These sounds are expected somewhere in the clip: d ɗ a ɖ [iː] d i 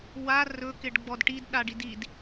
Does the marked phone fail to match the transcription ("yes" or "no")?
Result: yes